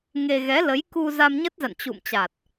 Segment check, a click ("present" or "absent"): absent